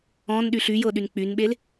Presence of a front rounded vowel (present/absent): present